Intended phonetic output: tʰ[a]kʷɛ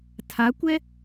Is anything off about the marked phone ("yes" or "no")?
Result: no